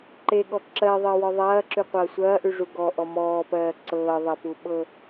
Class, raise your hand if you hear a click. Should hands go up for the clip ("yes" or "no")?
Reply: yes